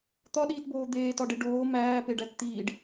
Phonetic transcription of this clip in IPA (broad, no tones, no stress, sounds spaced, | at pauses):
t̪ ɒ ɗ iː t b oː d̪ eː t ɒ ɖ e ɖ oː m æː p e ɖ æ t t̪ iː ɖ